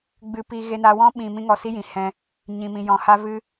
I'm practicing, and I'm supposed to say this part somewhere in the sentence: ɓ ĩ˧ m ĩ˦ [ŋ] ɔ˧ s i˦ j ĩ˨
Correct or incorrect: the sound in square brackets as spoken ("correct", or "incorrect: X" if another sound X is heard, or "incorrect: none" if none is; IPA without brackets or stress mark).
correct